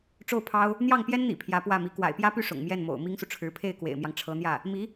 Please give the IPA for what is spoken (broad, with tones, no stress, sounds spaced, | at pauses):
ʈ͡ʂ o˥˩ ʊ̯ pʰ ɑ˥ ʊ̯ | n̪ j ɑ˥˩ ŋ p j ɛ˥ n n̪ ḭ˨˩ pʰ j ä˧˥ p w ä˥˩ m i˧˥ k w a̰˨˩ ɪ̯ p j ä˥ p y˥˩ ʂ ʊ̰˨˩ ŋ m j ɛ˥˩ n m o̰˨˩ ʊ̯ m i˥ ŋ s u˨ ʈ͡ʂʰ ɻ̩˧˥ pʰ e˥˩ ɪ̯ k w ḛ˨˩ ɪ̯ m j ɑ˦ ŋ ʈ͡ʂʰ ɤ˧˥ n̪ j ä˥˩ | m i˧˥